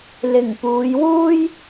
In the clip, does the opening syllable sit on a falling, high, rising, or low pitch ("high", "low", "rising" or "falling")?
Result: low